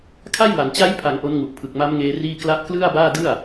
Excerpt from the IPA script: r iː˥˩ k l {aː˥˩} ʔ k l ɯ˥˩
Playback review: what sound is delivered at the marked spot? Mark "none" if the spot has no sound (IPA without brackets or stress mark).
a˥˩